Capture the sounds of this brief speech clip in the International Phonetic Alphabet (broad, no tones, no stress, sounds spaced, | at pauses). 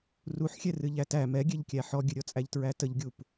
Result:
r u ħ xʲ ɛ r ɨ ʎ æ t æ m ɛ ɡʲ ɛ ʎ kʲ æ ħ ɔ ɡʲ ɨ ɾʲ ɔ t͡sʼ æ ʎ t ɹ æ t ə ʎ ɡʲ u p